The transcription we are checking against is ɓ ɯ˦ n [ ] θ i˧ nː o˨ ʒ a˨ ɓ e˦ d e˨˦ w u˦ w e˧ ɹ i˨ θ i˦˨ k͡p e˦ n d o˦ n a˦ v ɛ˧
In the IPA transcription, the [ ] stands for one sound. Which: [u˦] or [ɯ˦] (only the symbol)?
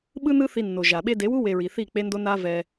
ɯ˦